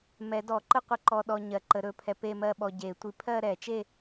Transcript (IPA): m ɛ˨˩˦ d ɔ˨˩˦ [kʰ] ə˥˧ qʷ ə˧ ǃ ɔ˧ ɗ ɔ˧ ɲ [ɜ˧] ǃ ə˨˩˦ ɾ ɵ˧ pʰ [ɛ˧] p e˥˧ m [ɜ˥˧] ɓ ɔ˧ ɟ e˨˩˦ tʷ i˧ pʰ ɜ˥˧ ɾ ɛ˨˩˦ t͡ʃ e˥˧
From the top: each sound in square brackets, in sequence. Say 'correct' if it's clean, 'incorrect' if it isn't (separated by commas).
incorrect, incorrect, correct, correct